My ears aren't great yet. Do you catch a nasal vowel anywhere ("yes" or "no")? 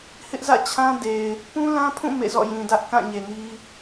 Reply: yes